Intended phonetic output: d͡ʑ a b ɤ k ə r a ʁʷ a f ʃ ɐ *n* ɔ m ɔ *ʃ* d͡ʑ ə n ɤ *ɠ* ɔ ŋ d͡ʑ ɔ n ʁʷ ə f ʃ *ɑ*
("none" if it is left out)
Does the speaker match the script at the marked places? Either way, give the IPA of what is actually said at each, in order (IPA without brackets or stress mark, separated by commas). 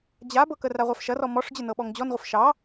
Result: r, ʂ, ɓ, ɑ